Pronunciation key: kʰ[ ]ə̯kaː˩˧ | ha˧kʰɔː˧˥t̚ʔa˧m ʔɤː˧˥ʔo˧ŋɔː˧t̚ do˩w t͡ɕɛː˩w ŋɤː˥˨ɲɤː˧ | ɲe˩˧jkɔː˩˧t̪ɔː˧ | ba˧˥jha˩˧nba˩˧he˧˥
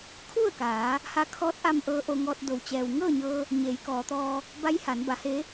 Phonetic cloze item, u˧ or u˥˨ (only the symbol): u˥˨